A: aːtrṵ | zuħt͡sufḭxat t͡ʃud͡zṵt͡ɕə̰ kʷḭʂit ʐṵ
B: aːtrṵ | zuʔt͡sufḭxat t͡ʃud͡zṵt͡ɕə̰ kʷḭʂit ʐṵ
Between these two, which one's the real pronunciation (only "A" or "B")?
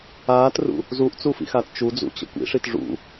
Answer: B